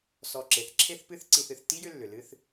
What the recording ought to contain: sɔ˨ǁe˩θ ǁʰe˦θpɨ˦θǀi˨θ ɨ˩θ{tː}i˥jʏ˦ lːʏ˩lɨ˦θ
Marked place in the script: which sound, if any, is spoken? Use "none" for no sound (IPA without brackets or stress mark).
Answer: tː